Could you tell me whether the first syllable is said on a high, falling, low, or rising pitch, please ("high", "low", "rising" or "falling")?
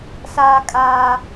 high